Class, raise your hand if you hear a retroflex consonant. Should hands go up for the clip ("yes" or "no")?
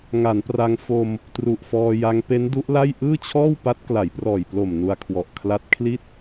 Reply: no